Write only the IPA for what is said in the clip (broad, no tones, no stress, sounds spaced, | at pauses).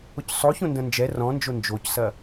ʊ c sˤ o ç õ n d ɐ̃ n d͡ʒ ɛ r ɔ̃ n d͡ʒ o n d͡ʒ o c s ɐ